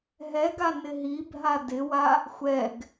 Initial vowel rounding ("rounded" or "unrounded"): unrounded